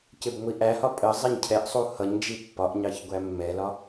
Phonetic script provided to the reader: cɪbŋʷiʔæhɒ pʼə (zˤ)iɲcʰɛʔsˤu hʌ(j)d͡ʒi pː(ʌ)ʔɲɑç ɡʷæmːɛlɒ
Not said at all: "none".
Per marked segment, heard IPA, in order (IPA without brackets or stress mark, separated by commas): zˤ, ɲ, ɒ